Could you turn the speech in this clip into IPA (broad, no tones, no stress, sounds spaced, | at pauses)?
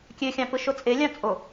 kʲ ø xʲ ɑ̃ p ɯ ʃ o t͡sʼ e lʲ ɑ̃ t͡sʼ o